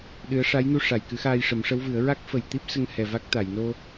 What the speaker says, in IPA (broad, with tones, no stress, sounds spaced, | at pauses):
ɗ ɨ˧˥ ə̯ ʂ a˧˥ j n u˧ ʂ a˨˩˨ j k ɨ˨˩˦ x aː˧ j ʂ ə˨˩˦ m ʂ ə˧˥ w v ɨ˨˩˦ ə̯ ɹ a˦˥ k̚ f ə˨˩ j t̪ i˦˥ p̚ s ə˧ ŋ h ɛ˨˩ v a˦˥ k̚ t̪ a˨˩˨ j n o˧